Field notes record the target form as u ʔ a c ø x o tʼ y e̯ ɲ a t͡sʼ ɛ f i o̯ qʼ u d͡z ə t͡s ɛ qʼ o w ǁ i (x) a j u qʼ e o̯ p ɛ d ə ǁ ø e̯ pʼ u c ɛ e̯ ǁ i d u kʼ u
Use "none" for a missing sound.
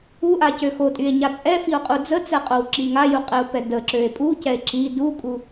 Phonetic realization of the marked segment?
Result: ŋ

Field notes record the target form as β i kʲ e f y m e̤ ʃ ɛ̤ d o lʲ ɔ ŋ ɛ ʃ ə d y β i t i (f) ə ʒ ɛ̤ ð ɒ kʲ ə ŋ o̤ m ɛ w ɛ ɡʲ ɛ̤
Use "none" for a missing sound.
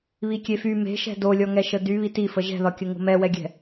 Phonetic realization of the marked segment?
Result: f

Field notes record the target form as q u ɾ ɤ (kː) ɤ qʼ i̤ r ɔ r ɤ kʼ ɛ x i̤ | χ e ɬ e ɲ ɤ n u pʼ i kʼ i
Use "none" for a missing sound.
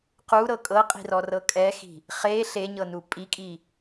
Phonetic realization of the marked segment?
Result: kʼ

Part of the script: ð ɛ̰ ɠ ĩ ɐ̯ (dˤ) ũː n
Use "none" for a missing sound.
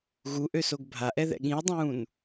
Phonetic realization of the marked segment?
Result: dˤ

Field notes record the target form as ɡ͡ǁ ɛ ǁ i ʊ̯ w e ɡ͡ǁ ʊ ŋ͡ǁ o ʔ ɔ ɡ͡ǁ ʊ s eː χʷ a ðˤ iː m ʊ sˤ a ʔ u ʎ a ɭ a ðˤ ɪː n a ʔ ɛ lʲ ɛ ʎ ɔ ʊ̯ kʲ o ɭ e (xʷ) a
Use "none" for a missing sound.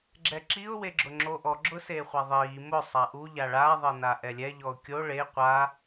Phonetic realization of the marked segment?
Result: qʷ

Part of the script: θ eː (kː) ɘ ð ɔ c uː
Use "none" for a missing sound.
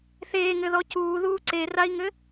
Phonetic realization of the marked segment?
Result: ŋ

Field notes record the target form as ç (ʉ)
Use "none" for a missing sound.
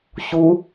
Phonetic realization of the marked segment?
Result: u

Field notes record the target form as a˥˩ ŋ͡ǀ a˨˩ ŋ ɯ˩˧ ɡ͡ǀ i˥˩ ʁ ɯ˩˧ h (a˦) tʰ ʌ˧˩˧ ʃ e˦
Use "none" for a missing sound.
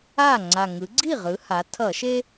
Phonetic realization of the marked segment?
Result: a˩˧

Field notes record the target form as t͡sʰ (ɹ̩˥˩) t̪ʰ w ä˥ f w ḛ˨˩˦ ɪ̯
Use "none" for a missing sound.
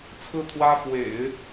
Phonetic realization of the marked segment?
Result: ɹ̩˥˩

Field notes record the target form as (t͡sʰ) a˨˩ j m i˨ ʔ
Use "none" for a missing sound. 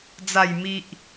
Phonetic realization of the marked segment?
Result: d͡z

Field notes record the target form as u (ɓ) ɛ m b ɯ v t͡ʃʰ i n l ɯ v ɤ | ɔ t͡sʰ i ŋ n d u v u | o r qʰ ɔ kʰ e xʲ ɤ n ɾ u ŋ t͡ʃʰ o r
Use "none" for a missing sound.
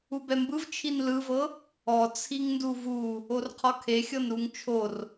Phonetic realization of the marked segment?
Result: b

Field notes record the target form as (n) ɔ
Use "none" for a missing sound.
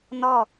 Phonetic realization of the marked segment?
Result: n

